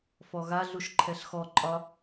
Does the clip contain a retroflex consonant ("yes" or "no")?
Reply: no